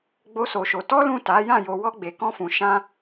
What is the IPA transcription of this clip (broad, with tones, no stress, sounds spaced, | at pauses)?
ɡ͡b o˦ s o˧ ʃ o˧ t ɔ˦ l ũ˦˨ t a˨˦ j ã˦˨ j o˧ w ɔ˦ ɡ͡b e˧ k ɔ̃˦ f ũ˧ ʃ ã˦